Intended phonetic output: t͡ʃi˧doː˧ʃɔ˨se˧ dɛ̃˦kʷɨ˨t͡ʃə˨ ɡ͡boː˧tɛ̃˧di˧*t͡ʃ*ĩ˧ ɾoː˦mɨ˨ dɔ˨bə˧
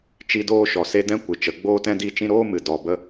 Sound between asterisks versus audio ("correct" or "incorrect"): correct